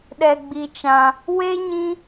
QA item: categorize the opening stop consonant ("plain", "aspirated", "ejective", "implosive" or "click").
implosive